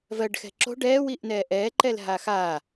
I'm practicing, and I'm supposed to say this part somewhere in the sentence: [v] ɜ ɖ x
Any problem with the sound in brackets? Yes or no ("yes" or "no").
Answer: no